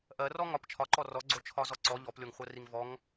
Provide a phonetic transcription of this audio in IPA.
ʔ ɜ r ɔ ŋ ɒ p t͡ʃʰ ɒ ǃ ɔ r ɔ ɡ͡ǀ o t͡ʃʰ ɒ z ɔ ǀ ɔ ʎ ɔ p lʲ o ŋ χʷ ɜ r i ŋ v ɔ ŋ

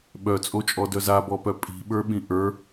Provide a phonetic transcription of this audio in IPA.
ɓ œ t͡sʼ o t͡ʃʼ ɔ d œ z a b ɔ p œ pʼ i̤ ɓ ə˞ ɓ ĩ ʔ ə˞

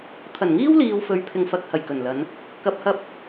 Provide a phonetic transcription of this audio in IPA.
t̪ʰ ɐ˨˩ n ŋ iː˥ w l iː˨ w f ɵ˨˧ ɥ pʰ ɪ˨ ŋ f ɐ˨˥ k̚ h ɐ˨˩ j k ɵ˨˩ n l ɐ˨˧ n | k ɐ˨ p̚ h ɐ˧ p̚

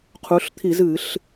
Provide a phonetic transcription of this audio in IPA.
qʰ u˩˧ ɬ t̪ʰ i˧˩˧ z ɨ˧˩˧ ɬ

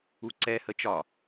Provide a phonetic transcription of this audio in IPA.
u ǀ ɛ h ə t͡ʃ ɒ

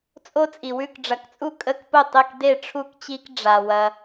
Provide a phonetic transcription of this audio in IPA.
t͡sʼ o˦ t͡sʼ i˨ w ʉ˥˨ k ɖ͡ʐ ɐ˨ k t͡sʼ u˥˨ kʼ ə˥˨ k p ʊ˥˨ tˤ e˥˨ k d e˥˨ ʈ͡ʂʰ u˥˨ k t͡ɕ i˦ k ɖ͡ʐ a˨ w ɐ˦

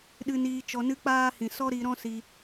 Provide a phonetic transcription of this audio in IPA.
ɗ ɨ˧ n iː˧ t͡ʃ ɔ˧ n ɨ˦ k͡p aː˦ h ĩ˨ s ɔ˦ ɾ i˧ ɾ ɔ̃˦ s i˧

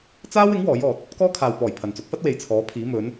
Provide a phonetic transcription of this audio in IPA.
t͡s aː˥ w ɪ˨˥ ŋ w ɔː˨˥ j ɔː˨ t̚ | k ɔː˥ kʰ aː˨ w p ɔː˨˩ j pʰ ɐ˨ n t͡s ʊ˨˥ k̚ f ɐ˥ t̚ w e˨ j t͡sʰ ɔː˨˥ pʰ iː˨˥ m ɵ˨˥ n

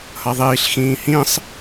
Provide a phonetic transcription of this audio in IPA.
h ʌ ðˤ iː ɬ x ĩː h ĩ sˤ

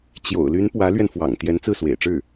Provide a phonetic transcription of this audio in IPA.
t͡ɕ j o̰˨˩ ʊ̯ l y˧˥ n p w ä˧˥ l ɥ ɛ˧ n f w ɑ̰˨˩ ŋ t̪ j ɛ˧˥ n t͡s ɹ̩˥˩ s w ḛ˨˩ ɪ̯ ʈ͡ʂ ɻ̩˥˩

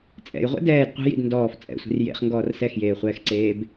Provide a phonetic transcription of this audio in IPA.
t͡sʼ ɛ̰ j ʁʷ ɛ̰ d ɛː d qʷ ɛ̤ j ḭ d n d ɔː f t͡sʼ ɛ̰ sʷ i̤ r j ḛ χ ŋ ɡ ɔː r s ɛ x j eː χʷ ɛː x ǀ eː b

